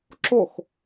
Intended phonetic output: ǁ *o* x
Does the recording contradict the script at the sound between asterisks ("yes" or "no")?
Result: no